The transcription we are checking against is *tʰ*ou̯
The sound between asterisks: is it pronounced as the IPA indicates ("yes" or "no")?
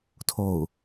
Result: yes